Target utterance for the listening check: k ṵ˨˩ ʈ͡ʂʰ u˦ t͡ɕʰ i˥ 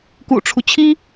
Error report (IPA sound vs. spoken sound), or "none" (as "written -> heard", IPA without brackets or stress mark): none